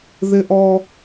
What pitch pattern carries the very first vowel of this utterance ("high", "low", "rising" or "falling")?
high